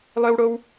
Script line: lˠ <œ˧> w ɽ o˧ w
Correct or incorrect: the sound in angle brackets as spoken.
correct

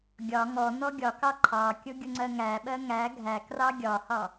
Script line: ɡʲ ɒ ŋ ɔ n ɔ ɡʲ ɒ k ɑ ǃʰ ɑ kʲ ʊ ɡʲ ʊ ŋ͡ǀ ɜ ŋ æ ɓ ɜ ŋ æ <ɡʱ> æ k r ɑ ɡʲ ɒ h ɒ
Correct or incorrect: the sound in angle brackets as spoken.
correct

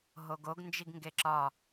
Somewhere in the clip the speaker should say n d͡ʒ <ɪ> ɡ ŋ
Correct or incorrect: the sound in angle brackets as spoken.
incorrect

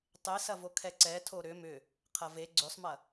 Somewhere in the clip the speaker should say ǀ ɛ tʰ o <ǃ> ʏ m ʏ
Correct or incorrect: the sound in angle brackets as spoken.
incorrect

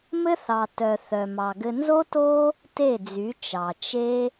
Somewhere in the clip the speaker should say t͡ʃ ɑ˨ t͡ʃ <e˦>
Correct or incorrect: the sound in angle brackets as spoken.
correct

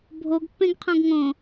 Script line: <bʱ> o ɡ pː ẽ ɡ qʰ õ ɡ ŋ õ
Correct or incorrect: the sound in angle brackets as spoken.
correct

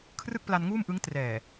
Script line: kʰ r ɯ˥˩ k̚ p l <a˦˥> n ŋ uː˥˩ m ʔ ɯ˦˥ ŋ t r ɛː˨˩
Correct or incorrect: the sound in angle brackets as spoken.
incorrect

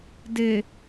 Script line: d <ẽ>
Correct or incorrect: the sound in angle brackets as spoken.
incorrect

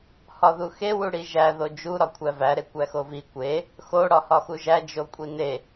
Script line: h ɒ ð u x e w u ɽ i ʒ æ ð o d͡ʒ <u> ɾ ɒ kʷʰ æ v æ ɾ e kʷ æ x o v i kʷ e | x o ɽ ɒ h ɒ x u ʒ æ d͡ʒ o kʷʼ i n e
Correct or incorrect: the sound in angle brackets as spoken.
correct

